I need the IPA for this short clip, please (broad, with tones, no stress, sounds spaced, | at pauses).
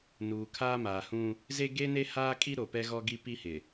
n uː˨ kʰ aː˦ m aː˨ h ũ˦ | z e˦ ɡ e˦ n e˦ h aː˦ kʼ i˦ ɾ o˨ p ɛ˦ ɣ ɔ˦ ɡ i˦ p i˦ h ɪ˨